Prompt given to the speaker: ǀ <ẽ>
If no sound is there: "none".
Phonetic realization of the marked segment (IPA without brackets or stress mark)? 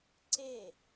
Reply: e